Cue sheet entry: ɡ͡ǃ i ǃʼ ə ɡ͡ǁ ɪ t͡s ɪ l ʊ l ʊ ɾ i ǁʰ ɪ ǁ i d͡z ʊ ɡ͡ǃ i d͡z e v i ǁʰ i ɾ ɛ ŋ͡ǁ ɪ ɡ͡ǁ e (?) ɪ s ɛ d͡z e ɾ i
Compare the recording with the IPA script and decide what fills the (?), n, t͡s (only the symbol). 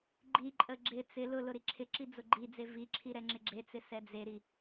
t͡s